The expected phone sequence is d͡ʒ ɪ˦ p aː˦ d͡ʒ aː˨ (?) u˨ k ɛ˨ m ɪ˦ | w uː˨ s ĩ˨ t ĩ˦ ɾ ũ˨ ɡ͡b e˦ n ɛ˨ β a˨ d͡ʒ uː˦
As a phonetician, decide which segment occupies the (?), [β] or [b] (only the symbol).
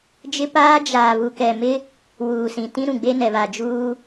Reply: β